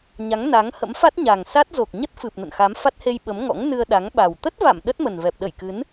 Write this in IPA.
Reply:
ɲ a˨˦ ŋ n a˨˦ ŋ h ə̰˧˥ m f a˦˥ t̚ ɲ a˨˩ ŋ s a˦˥ t̚ z o˨˩ k̚ ɲ ə˦˥ t̚ f ɨ˨˩ p̚ n ə̰˧˨ n x a˨˦ m f a˦˥ t̚ h e˧ j ɓ ə˨˦ m ŋ ɔ̰˧˥ ŋ n ɨ˧ ə̯ ɗ a˨˦ ŋ ɓ a˨˩ w t̪ ə˦˥ t̚ v a̰˧˨ m ɗ ə˦˥ t̚ m ə˨˩ n v ɛ˨˩ p̚ ɗ ə˧˩ j k ɨ˨˦ n

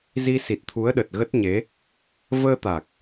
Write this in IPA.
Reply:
z i˧ s i˨˩ t̚ t̪ʰ u˨˦ ə̯ ɗ ə˨˩ t̚ ɣ ə˦˥ t̚ ɲ e˨˦ | v əː˧ t̪ a˨˩ k̚

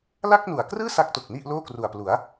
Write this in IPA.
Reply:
l a˥˩ k̚ n u˨˩ a̯ k r ɯː˥˩ s a˦˥ k̚ t o˨˩ k̚ n i˥˩ ʔ l oː˥˩ k r u˨˩ a̯ p l u˩˦ a̯

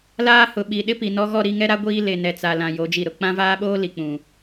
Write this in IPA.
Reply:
l aː˦ h ʊ˨ ɓ i˨ ɗ ɪ˦ p i˨ n ɔ˦ ɣ ɔ˦˨ ɾ i˦˨ ŋ ɛ˦ ɾ a˦ ɡʷ iː˦ l e˨ n ɛ˨ t͡s a˨ l ã˨ j o˨˦ d͡ʒ i˨ ɾ ʊ˨ k͡p ã˦ v aː˦ ɓ oː˦ l i˨ k͡p ũ˨

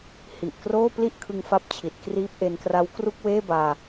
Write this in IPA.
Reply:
h i˨˩ ʔ k r oː˥˩ p l i˥˩ ʔ kʰ ɯ˧ ŋ f a˥˩ p̚ t͡ɕʰ i˨˩ t̚ k r iː˦˥ p̚ ʔ e˧ n k r a˦˥ w k r u˥˩ k̚ w eː˥˩ b aː˧

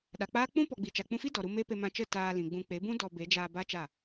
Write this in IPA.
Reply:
ɗ a˨ k͡p aː˦ k͡p ũ˦ p ɔ˨ ɡ͡b i˨ t͡ʃ a˨ k͡p ũ˧ f i˦ d ɔ˨ ɾ u˧ m e˦ p e˧ m ã˧ t͡ʃ ə˦˨ t aː˧ l ĩ˨ ɡ͡b ũ˧ k͡p e˨˦ b ũ˦ d ɔ˧ b e˨˦ d͡ʒ aː˧ b a˦ t͡ʃ a˦˨

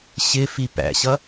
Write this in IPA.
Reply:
ɕ ɪ f i p æ̰ ɕ ʌ

